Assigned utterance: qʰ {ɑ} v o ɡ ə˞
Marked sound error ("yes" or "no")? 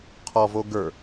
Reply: yes